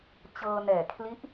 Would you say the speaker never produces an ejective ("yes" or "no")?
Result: yes